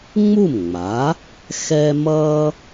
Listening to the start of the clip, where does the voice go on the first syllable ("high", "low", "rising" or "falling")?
falling